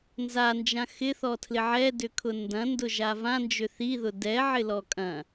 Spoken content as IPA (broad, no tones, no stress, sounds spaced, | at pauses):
n z a n d͡ʒ ã x ɪ θ ɔ tʰ l ɪ ʕ ɛ d ʏ kʰ ʊ n d ɐ̃ n d ʊ ʒ a v ã n d͡ʒ ʏ θ i ð ʊ d ɛ ʕ ɪ l ɔ kʼ ɐ̃